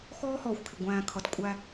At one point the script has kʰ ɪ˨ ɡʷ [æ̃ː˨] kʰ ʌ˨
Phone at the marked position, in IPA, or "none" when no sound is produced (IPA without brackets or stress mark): æ̃ː˨